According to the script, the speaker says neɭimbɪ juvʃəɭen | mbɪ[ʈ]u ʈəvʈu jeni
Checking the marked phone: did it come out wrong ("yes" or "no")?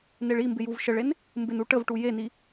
yes